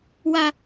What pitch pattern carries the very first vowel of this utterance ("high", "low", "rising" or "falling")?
high